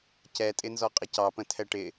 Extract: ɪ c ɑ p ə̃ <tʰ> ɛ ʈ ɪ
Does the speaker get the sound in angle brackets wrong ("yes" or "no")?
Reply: no